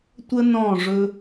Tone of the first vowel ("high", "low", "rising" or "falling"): high